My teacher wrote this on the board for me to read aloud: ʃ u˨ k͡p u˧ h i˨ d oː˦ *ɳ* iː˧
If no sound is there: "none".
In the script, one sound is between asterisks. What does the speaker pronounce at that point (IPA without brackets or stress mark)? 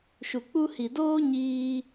ɲ